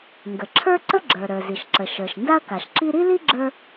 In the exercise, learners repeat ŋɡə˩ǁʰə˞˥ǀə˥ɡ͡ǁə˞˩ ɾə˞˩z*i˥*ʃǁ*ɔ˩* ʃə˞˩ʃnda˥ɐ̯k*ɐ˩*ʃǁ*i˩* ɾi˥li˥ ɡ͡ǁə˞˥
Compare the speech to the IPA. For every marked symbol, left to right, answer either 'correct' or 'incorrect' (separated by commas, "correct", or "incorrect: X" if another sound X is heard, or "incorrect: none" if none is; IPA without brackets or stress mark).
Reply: incorrect: i˩, incorrect: ə˩, incorrect: a˩, incorrect: i˥